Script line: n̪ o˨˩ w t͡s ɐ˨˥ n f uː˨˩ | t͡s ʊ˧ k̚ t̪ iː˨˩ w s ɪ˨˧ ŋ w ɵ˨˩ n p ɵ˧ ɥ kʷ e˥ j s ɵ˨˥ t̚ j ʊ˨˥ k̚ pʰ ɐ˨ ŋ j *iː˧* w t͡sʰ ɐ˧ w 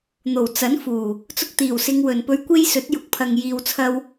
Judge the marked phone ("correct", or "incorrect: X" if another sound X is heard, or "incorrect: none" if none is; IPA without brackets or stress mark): incorrect: iː˨